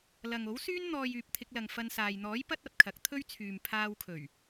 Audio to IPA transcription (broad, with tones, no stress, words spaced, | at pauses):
lɐ˨ŋo˨˥wsyː˥n n̪ɔː˧j yː˨p̚t̪ʰɪ˧k̚lɐ˨ŋ fɐ˧nsaː˨j n̪ɔː˨˥j pɐ˥t̚ɐ˨p̚kʰɐ˨˥k̚ t̪ʰɵ˥ɥt͡sʰyː˨m pʰaː˧wkʰɵ˨˩ɥ